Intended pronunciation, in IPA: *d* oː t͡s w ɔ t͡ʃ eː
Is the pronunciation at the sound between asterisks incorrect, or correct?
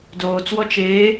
correct